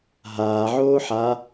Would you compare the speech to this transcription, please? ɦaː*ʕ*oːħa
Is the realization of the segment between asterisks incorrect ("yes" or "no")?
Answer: no